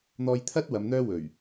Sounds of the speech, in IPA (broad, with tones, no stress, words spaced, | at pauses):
n̪ɔː˧jt̪ʰɐ˥t̚ wɐ˨˧mn̪œː˥ wɵ˨˩ɥ